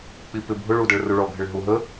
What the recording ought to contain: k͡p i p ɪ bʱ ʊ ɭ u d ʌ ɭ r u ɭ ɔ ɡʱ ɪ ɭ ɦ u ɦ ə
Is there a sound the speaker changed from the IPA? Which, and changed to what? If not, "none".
none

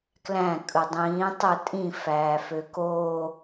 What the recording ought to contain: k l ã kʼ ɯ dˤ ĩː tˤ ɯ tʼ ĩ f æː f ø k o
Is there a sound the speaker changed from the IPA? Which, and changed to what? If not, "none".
ã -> æ̃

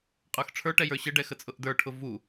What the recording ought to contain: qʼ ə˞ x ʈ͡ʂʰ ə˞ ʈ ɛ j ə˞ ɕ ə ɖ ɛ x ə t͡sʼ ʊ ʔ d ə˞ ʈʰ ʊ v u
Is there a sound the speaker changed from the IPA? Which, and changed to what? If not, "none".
none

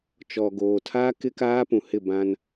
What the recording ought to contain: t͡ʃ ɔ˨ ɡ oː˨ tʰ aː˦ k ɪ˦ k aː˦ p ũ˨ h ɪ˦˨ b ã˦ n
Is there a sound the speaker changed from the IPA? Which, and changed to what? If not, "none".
none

